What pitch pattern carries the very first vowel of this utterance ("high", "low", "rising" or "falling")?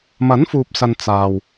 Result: rising